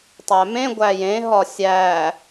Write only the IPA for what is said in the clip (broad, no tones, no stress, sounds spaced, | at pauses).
tˤ æ m ẽ ɡʷ æ j ẽ ɦ ɒ sʲ æ